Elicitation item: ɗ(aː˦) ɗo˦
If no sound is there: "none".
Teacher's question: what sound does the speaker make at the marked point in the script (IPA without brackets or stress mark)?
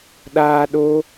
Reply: aː˦